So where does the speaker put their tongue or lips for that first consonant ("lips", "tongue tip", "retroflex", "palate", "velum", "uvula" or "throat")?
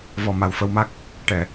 lips